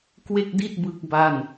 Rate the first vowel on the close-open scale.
mid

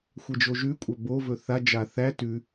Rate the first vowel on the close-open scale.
mid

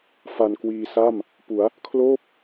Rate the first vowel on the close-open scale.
open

